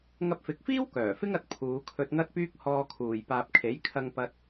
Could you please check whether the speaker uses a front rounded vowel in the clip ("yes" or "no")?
yes